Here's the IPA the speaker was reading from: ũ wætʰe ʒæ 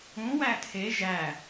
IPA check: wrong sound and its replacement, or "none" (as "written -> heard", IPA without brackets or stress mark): none